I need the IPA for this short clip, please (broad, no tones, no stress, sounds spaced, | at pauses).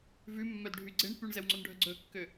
v ʉ mː œ d ɖʱ y ɡ͡ǀ e ɳ p y ɳ z ɛ w ŋ͡ǀ o n ɖʱ œ ɡ͡ǀ ɵ kː ø